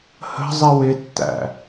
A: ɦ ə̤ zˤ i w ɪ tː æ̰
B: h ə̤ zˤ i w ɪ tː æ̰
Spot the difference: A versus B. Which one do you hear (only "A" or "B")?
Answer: B